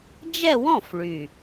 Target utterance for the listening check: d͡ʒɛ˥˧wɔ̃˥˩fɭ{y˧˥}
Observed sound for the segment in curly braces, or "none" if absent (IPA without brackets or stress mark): y˨˩